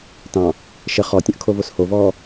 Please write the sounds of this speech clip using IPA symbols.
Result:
tɑ̃ | ʃə χɔtʲə̃ʔkʰovos hovɔː

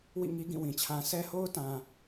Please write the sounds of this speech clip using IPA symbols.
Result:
wḭ˦˨ŋi˦ ɡĩ˦˨wĩ˨t͡ɕʰã˦ sʰɛ˦ho˦ʊ̯tã˨

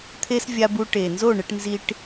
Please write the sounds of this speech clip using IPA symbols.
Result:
t̪ʰe˦svʲa˧bu˧ ʈe˨ nzo˦˨ɳe˧ʈnzi˧ʈ

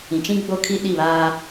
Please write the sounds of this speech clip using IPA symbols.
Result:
ĩ˨t͡ʃĩ˦ɡ͡bo˦ kʰi˦ɗi˦˨βaː˦

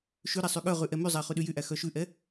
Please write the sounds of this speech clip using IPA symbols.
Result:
ʃʉɾɛ sˤyɠœʁʉ ʔɛmyzˤæ χʉɗyjyʔæ xœʃʉʔɛ

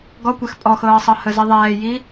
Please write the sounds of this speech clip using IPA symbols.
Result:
ɡɔkʷɛx pʼɔxɤːsˤɤ həzi ðˤɛːji

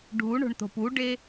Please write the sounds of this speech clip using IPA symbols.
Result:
ɖʱuɳo̤ɳt̪o̤p uɖe

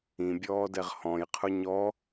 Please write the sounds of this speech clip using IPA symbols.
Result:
ĩbʲɔːdɛʁ hɔ̃jqʰʊ ɲɔ

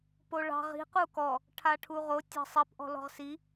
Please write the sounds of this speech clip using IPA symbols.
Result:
poɭɑ̤ ʁi̤ qukɔ | ʈʰaʈʰuʁo tʲɑ̤sˤip ʔɔ̤lɔ̤ʁsi

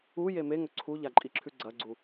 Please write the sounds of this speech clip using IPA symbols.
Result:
uje meŋɵ ǀʰuʎaǃʼiǁʰʉ ɡ͡ǀɐɡ͡ǀu

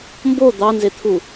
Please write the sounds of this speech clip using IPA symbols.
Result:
mbo d̪ɑnzet̪ʰu

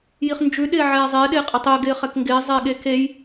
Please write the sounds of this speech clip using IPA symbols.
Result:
jiχnd͡ʒʉ ɗɪːʕɛːzˤɪː ɗɪːqʼɪtˤe ɡɪːχɛkŋɡɪː zˤɪːɠekej

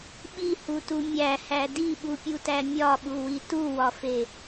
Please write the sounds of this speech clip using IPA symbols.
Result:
ɓihutu mʲæhæ diɓupʲutæ mʲɒɓuwi tuwɒfe

